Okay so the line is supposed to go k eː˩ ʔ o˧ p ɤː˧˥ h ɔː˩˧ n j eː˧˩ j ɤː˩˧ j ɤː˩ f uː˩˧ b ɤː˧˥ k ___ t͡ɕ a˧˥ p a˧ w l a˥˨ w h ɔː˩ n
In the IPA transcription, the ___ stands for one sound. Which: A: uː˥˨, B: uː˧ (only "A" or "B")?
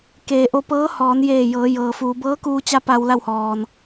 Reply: B